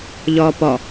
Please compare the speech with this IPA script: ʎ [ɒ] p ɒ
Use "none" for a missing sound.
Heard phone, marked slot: ɒː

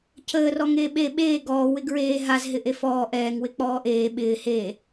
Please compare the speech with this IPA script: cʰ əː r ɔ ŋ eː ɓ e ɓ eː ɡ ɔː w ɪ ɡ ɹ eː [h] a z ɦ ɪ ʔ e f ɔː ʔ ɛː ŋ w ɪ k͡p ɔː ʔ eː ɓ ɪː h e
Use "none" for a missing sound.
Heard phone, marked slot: ɦ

